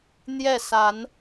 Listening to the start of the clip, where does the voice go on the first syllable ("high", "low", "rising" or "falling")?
falling